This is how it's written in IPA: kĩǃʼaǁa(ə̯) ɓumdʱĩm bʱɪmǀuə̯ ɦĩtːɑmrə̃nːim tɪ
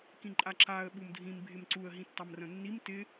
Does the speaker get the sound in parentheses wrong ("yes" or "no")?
no